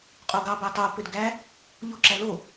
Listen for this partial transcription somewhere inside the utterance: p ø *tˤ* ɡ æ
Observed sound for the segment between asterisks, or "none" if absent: d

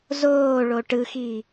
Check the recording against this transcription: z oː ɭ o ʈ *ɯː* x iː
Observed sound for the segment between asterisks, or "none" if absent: ɯ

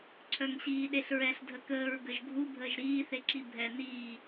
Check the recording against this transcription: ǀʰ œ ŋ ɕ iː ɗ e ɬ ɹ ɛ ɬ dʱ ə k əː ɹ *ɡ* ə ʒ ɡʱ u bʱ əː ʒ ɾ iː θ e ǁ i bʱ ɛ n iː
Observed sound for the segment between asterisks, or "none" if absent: ɡ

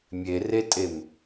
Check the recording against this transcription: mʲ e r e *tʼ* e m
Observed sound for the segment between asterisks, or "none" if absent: tʼ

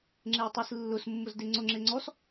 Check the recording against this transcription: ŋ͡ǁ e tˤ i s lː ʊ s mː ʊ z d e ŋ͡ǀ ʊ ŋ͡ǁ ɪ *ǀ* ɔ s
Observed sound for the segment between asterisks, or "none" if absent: ŋ͡ǀ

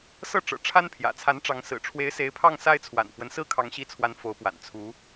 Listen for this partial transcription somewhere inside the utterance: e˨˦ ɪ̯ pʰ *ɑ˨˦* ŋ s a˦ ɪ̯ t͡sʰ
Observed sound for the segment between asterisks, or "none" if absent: ɑ˥˨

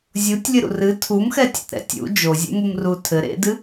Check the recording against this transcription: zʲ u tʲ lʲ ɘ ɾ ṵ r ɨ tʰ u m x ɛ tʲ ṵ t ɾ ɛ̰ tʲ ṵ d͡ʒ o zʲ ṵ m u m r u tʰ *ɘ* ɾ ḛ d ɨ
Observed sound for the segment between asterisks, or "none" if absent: ɘ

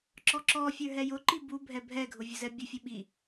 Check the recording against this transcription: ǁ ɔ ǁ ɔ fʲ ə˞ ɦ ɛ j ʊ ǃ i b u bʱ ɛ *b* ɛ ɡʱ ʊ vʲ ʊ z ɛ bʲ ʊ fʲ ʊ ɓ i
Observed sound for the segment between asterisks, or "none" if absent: bʱ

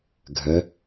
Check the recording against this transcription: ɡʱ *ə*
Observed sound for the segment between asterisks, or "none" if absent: ə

